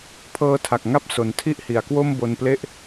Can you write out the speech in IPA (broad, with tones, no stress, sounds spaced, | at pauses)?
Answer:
pʰ ɤː˧ tʰ a˨˩ k̚ ŋ a˦˥ p̚ s o˩˦ n tʰ i˥˩ ʔ h i˩˦ a̯ k w o˥˩ m b o˧ n p l e˥˩ ʔ